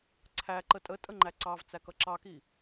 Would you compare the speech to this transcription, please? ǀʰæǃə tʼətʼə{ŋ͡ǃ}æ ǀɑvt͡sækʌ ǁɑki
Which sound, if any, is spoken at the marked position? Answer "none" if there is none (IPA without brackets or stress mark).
ŋ͡ǃ